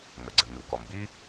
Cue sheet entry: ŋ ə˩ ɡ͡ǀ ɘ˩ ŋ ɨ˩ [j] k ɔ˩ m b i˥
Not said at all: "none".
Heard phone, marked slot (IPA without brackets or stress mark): w